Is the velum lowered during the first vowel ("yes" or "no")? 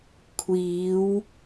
no